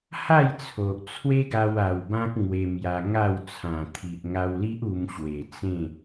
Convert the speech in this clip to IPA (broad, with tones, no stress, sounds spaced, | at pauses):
h a˥˧ j t͡sʰ o˨ ʔ t͡sʰ w e˦ ɡ a˧ w a˨˩ w b ã˦ k̚ ŋ w e˧ m j a˧ ŋ a˥˧ w t͡sʰ ã˨˩ t̪ʰ i˨ ʔ ŋ a˧ w l i˦ ʔ u˧ m ɕ w e˨˩ t͡s ẽ˥˧